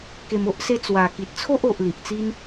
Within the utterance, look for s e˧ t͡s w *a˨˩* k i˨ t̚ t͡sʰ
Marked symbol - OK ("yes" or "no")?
yes